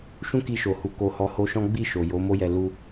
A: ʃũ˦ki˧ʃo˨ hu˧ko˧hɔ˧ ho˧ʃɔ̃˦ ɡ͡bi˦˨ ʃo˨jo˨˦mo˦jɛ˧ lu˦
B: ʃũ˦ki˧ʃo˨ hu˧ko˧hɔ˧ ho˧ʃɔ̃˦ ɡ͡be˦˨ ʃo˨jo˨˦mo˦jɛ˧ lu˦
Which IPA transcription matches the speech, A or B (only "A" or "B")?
A